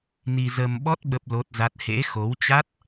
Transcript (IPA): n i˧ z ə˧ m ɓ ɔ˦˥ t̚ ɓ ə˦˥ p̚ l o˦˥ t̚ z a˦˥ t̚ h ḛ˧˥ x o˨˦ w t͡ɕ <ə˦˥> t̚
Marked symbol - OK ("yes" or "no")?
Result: no